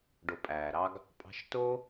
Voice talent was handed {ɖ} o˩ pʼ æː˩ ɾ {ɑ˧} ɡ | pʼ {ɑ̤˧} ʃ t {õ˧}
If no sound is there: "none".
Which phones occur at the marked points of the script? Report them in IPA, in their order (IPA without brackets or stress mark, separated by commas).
ɖ, ɑ˧, ɑ̤˧, o˧